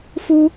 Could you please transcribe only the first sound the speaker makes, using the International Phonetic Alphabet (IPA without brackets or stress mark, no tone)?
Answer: f